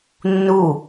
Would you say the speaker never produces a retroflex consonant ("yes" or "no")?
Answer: yes